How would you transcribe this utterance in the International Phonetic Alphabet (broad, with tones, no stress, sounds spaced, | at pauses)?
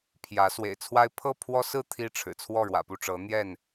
pʰ j ä˨˦ s w ḛ˨˩ ɪ̯ t͡sʰ w a˦ ɪ̯ pʰ ɤ˥˨ pʰ w ɔ˦ s ɹ̩˥˨ t̪ʰ i˦ ʈ͡ʂʰ ɻ̩˨˩ t͡sʰ w ɔ˥˨ ɻ w ä̰˨˩ p u˥˨ ʈ͡ʂ ɤ˨˦ n̪ j ɛ˥˨ n